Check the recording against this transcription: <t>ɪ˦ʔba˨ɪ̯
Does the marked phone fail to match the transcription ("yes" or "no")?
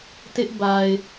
no